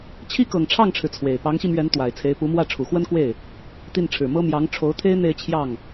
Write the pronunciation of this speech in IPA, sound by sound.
t͡ɕʰ i˥ k ɤ˨˩ ŋ ʈ͡ʂʰ ɑ˥˩ ŋ ʈ͡ʂʰ ɻ̩˩ t͡sʰ w e˨˩ ɪ̯ p ɑ˧˥ ŋ ɕ i˧ m ɥ ɛ˧˥ n t̪ w a˨˩ ɪ̯ t͡sʰ e˧˥ ɪ̯ p u˧˥ m w ä˥˩ ʈ͡ʂʰ u˨˩ x w ə˥ n k w e˥˩ ɪ̯ | t̪ i˥˩ n ʈ͡ʂʰ ɻ̩˨˩ m ɤ˥ m j ɑ˧˥ ŋ ʈ͡ʂʰ o˧˥ ʊ̯ t̪ʰ e˥ ɪ̯ n̪ e˥˧ ɪ̯ t͡ɕʰ j ɑ˥˩ ŋ

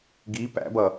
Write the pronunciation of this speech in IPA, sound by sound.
ɡ i p æ̰ b ʌ

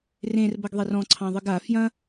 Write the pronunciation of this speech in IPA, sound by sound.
r ẽ r b ɐ ɡ ðˤ e r ɔ̃ ǀʰ ɑ̃ ðˤ ɨ ɡ a f j ɐ̃

